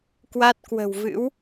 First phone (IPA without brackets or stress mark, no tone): k